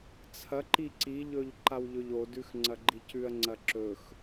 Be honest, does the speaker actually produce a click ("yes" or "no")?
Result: yes